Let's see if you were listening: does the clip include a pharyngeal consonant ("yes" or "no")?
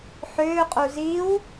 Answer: yes